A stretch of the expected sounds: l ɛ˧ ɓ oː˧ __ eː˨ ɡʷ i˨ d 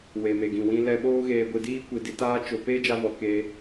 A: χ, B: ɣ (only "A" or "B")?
B